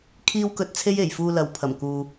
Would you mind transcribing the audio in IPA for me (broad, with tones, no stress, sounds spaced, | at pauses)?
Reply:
kʰ iː˥ w k ɵ˧ t̚ t͡sʰ e˥ j e˨˩ j f uː˧ l ɐ˨˥ w pʰ ɐ˨˩ m k uː˨